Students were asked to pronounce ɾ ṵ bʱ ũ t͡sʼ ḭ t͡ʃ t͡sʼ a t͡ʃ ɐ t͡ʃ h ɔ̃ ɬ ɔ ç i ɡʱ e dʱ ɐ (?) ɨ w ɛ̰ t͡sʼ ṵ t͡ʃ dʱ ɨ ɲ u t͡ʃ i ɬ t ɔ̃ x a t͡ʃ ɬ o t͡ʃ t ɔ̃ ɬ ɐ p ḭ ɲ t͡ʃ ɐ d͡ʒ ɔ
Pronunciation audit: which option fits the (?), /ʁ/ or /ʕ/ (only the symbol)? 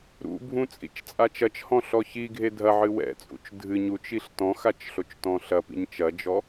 ʕ